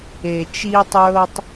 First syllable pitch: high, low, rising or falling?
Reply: low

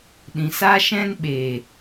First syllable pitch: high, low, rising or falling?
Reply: low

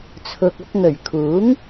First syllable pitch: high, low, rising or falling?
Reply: low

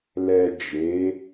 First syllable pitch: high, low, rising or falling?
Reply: low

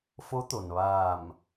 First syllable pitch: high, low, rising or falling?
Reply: rising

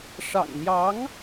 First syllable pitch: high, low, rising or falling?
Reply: low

